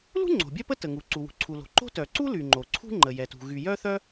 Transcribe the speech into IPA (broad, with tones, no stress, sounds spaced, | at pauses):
l ṳ˥ ŋ͡ǀ o̤˩ bʲ œ˥ p ə˥ t ə˩ ŋ u˩ ǀ u˩ w ṳ˩ ǀʰ u˩ l o̤˩ ǃ o̤˥ t œ˩ ǀ u˥ l y˩ ŋ͡ǃ o˩ ǀʰ ṳ˥ ŋ͡ǃ ə˩ j ɛ˩ t ṳ˩ ɣ y˩ j œ˥ θ œ˥